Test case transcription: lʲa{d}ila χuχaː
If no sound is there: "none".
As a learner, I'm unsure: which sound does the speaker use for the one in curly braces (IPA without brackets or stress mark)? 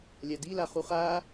d